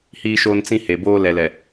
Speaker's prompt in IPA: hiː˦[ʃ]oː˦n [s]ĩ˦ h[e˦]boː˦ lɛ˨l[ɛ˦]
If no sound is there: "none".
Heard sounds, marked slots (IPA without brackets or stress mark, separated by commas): ʃ, t͡s, e˨, ɛ˨